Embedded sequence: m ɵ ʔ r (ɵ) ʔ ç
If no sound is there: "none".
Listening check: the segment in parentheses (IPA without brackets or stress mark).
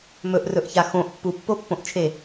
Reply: ɵ